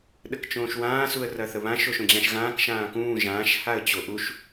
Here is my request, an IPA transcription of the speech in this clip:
ɗəkt͡ʃõːʃwãː suə̯rɐθəβãʃ oʃõd͡ʑãʃɣãːk ʃãːkũː ʒãːʃ haə̯t͡ɕoʔuʃ

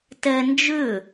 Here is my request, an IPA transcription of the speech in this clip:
tɛ nd͡ʒʏ

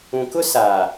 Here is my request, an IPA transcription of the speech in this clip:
ũ˨kʊ˦saː˨

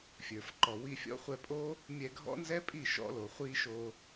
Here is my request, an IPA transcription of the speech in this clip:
fʲə˞˨fǃɔ˨ wi˧fʲɔ̰˦χʷɛ˧pʼo˦ | mʲɛ˧ɡʱɔ̰˦nzɛ˦pʼi˦˨ ʃɔ̰˦lo˨χʷi˦ʃo˧

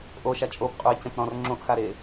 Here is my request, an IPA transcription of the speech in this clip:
ʔoʃa t͡ʃʼopqʼuɪ̯cẽp ɾɔ̃rŋ͡ǁõʔxaɾe

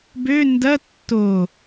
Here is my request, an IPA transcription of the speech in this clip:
bø ndɐ tːo

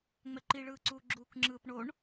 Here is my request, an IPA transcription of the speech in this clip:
ŋ͡mɛǃiɭɯːǀuː ɡ͡ǁuːkŋ͡ǁɯːpɳoɳ

